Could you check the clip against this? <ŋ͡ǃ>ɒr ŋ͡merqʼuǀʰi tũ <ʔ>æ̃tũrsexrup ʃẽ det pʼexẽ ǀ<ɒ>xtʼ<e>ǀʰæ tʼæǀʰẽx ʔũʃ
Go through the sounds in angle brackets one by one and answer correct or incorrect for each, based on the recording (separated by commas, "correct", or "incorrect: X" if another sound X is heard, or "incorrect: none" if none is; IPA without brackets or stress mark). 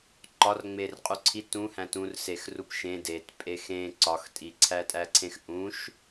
incorrect: ǃ, incorrect: h, correct, incorrect: i